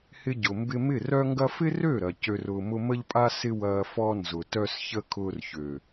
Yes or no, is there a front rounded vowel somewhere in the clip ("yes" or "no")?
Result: yes